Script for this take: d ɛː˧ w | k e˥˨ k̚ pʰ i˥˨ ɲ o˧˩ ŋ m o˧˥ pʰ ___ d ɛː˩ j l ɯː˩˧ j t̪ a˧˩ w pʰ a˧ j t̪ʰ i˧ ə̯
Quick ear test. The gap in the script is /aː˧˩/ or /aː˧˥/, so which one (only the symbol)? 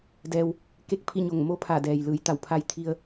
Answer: aː˧˩